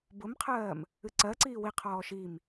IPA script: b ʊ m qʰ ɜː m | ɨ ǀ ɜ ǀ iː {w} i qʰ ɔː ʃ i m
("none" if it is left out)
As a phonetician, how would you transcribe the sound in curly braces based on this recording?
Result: w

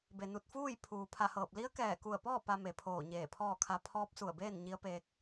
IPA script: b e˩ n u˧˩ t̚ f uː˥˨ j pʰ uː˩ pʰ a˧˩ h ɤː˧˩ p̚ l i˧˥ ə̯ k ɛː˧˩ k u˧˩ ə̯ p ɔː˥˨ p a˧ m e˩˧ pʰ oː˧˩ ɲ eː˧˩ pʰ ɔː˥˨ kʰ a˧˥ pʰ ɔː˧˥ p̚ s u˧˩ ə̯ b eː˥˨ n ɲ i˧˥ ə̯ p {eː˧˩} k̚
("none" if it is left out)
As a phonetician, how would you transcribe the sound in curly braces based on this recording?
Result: eː˧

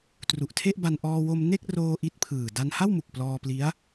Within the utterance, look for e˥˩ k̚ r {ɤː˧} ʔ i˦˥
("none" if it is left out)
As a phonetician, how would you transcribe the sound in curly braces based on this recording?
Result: oː˧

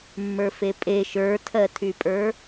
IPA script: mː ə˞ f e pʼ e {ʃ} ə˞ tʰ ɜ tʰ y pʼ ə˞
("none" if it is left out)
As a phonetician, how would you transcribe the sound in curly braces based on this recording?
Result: ʃ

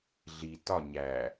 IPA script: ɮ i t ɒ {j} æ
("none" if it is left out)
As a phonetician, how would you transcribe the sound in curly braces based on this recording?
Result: ɲ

